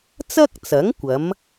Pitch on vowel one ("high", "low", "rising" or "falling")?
high